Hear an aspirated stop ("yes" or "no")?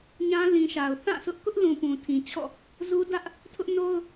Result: yes